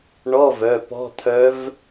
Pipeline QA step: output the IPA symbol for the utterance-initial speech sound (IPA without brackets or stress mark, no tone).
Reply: ɳ